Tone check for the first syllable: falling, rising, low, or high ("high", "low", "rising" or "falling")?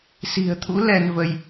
low